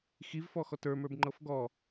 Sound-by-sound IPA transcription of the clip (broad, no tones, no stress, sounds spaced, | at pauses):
x i v f ɔ x ɔ t ə˞ m ə˞ b ŋ͡ǃ ɤ f ɡ ɔ